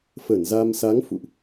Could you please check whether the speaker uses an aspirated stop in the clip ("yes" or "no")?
no